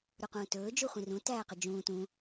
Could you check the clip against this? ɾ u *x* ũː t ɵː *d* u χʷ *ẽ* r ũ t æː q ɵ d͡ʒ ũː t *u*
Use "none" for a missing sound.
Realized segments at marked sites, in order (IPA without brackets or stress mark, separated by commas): q, d͡ʒ, ĩ, ũ